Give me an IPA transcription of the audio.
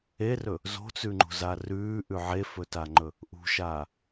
e r ɵ | z o̤ t͡s ʉ ŋ͡ǃ ṳ z a r ʉː ʔ ʉ ʕ e f ɵ t a ŋ͡ǃ ɵ | ʔ ṳ ʃ aː

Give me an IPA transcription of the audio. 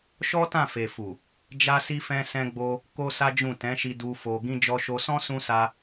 ʃ ɔ˦ t ã˦˨ f e˨ f u˨ | d͡ʒ a˦ s i˦ f ɛ̃˦ s ɛ̃˧ ɡ͡b o˧ | k o˦ s a˦ d͡ʒ ũ˦˨ t ɛ̃˨˦ ʃ i˧ d u˧ f o˧ ɡ ĩ˧ d͡ʒ ɔ˧ ʃ o˧ s ɔ̃˦ s ũ˦ s a˦

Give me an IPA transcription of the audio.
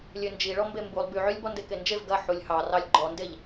lʲ ø n d͡ʒ i ɭ ɔ m b e m b u lˠ b y ʕ y lʲ b ɔ n d e k e n d͡ʒ e v ɡ ɐ ħ u lʲ h ɑ r ɑ lʲ ɡ͡ǃ ɔ n d e ʎ

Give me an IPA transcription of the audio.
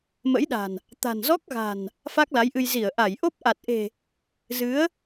m ə̰˧˥ j ɗ a̤˨˩ n | t̪ a̤˨˩ n z ɔ˦˥ k̚ ɣ a̤˨˩ n | f a˦˥ k̚ l a˨˦ j ʔ ɨ˧ j z i˧˩ ə̯ ʔ a˧˩ j ʔ o˦˥ p̚ ʔ a˨˩ t̚ ʔ e̤˨˩ | z ɨ˨˦ ə̯

